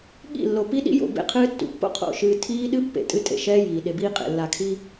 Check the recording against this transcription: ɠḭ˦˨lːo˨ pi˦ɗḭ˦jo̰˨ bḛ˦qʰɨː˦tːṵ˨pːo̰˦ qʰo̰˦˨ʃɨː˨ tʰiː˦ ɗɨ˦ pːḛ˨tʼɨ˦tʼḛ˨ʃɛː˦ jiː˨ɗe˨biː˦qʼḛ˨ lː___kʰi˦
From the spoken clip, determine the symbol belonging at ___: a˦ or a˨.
a˨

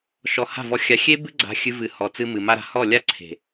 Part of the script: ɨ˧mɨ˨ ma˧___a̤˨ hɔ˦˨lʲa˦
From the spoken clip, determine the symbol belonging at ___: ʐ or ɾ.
ɾ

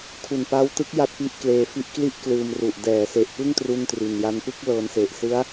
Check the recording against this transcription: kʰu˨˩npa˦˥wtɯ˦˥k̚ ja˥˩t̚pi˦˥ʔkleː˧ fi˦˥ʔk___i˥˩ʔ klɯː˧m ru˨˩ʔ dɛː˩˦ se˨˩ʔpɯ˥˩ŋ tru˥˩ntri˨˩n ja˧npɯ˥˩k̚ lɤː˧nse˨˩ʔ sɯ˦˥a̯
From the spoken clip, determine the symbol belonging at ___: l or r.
l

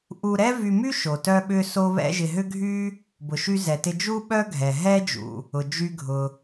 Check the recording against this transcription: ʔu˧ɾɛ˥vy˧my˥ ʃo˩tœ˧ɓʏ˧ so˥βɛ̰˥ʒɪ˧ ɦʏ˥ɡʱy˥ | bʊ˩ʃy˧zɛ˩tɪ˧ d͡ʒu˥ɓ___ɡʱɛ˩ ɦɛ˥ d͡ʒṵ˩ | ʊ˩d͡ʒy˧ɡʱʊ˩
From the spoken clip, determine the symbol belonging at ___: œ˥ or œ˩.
œ˥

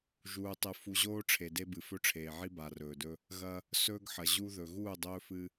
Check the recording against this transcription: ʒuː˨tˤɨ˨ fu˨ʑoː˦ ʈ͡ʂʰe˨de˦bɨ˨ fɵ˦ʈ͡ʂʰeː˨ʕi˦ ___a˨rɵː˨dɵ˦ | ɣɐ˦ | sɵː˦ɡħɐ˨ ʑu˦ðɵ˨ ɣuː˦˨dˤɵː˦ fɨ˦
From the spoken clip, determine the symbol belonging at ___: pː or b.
b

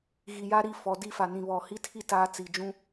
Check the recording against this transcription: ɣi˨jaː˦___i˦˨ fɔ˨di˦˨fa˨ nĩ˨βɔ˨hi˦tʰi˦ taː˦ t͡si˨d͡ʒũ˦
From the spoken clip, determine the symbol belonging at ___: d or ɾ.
ɾ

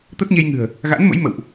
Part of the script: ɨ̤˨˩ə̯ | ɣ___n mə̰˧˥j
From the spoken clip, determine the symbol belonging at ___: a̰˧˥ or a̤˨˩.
a̰˧˥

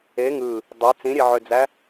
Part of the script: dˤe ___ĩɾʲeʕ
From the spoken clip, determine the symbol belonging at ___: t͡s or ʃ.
t͡s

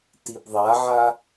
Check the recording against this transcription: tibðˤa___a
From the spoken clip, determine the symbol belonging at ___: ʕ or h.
ʕ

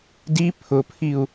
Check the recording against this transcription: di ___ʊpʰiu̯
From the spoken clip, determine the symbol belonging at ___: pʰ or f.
pʰ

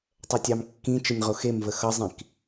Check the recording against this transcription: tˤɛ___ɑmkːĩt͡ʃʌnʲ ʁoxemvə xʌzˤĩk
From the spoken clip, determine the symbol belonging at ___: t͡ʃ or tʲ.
tʲ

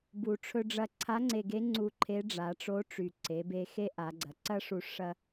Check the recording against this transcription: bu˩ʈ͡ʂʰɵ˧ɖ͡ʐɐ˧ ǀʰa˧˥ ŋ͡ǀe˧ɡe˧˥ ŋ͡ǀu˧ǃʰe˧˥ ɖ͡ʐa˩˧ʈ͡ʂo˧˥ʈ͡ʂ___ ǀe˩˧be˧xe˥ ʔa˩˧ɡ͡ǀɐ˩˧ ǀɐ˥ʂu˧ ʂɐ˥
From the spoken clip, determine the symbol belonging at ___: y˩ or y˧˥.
y˩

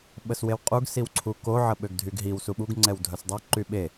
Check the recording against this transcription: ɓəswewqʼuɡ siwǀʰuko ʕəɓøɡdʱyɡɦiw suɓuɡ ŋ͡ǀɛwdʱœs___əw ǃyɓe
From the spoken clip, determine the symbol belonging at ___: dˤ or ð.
dˤ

